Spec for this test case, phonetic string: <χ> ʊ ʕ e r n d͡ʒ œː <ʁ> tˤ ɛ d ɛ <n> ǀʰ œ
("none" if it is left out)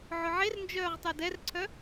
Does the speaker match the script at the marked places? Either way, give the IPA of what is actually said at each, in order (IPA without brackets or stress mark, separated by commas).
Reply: ʕ, ʁ, r